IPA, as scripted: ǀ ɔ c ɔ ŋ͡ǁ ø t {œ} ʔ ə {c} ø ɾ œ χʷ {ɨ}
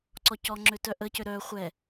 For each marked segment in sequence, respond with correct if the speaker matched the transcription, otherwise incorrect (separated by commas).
correct, correct, incorrect